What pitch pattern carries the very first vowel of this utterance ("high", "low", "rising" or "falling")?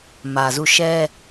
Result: low